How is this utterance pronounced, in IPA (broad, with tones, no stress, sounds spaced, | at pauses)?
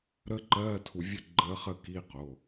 ɾ ə˦˥ ǃ ɜː˧˥˧ tʰ u˧ vʲ ə˥˨ ɡ͡ǃ əː˦˥ χ ə˥˨ k i˧˥˧ q o˩˧˩